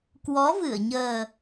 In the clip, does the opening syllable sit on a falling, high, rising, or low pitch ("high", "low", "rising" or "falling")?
rising